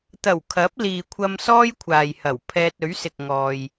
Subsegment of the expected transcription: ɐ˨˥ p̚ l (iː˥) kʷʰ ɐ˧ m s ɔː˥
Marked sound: incorrect: iː˨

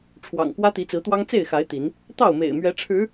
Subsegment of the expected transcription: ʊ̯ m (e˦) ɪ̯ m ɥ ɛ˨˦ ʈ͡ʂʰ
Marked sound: incorrect: ḛ˨˩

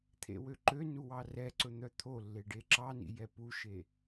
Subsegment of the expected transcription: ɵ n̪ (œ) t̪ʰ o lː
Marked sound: correct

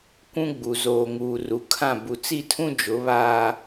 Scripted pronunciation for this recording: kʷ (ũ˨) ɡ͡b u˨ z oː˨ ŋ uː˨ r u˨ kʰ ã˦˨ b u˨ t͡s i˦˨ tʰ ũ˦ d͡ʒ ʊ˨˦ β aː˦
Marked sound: incorrect: ũ˦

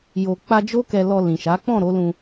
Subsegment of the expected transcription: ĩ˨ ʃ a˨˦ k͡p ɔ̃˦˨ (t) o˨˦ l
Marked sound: incorrect: ɾ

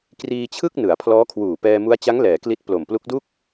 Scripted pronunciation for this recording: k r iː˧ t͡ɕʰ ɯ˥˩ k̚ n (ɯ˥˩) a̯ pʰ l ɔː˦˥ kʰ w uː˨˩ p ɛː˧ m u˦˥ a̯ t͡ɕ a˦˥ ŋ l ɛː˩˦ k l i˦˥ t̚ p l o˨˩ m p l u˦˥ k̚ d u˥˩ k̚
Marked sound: incorrect: ɯ˩˦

